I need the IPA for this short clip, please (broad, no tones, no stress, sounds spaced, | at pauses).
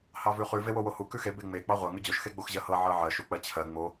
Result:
h ɑ v ʉ χ ʉ v e w o w o h u k ʉ x e b e ŋ͡m e k͡p ɑ ʁʷ ɜ ŋ ʉ d͡ʑ o ʃ x e ɡ͡b o x ʑ ɜ h ɤ ʕ ɤ ʕ ɜ ʃ u k͡p ɜ t͡ɕʰ ɜ ŋ͡m o